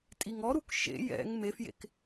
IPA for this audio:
tʼ i ŋ ɔ ɾ u k ʃ ḛ j ɛ̰ ŋ m e f j ḛ k

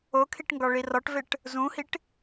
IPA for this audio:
o kʰ i ʈ ŋ ɡ ɒ ɭ i r ɒ ʈ v e ʈ | z ũ h i ʈ

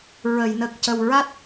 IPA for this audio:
ɹ ə˨˩˨ j n ə˨˩ k̚ c ə˨˩ w ɹ a˦˥ t̚

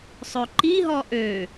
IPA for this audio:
sˤ ø ǃ i ɦ ɔ ʔ ø

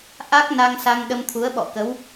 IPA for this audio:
ʔ a˦˥ k̚ n a˧ ŋ s a˧ ŋ ɗ ə˧ m t̪ʰ u˨˦ ə̯ ɓ ɔ̰˧˨ k ə˨˦ w

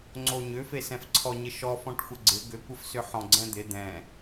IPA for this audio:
ŋ͡ǀ o ɲ ʏ f e s ɛ̃ f ǀʰ ɔ ɲ ɪ ʃ ɔ f ɔ̃ ʈ xʷ ə ɡ͡ǀ ɪ ɡ ʏ kʷ ə f s ʏ ħ ɔ̃ ɡ͡ǀ ɛ̃ d̪ ɪ d̪ ɛ̃

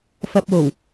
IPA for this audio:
f ɐ˨ p̚ w o˨˩ w

